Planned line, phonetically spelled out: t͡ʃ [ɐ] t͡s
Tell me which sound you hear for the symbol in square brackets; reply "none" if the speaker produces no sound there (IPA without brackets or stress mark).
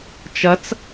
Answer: ɐ